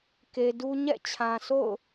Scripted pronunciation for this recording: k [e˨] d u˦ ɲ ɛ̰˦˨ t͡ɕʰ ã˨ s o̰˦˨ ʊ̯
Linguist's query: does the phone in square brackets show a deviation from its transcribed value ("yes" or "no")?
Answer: no